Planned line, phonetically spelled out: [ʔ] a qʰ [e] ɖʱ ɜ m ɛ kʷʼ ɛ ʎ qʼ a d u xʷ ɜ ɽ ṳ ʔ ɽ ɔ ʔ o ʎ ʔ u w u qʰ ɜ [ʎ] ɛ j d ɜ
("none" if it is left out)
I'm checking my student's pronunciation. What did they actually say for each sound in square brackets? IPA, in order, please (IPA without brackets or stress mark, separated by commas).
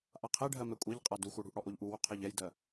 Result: ʔ, e, ʎ